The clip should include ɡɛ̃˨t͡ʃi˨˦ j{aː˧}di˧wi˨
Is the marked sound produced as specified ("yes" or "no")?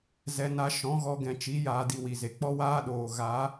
yes